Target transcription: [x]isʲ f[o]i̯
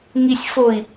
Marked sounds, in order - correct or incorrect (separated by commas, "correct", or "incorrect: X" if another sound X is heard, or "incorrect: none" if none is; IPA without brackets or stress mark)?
incorrect: ŋ, correct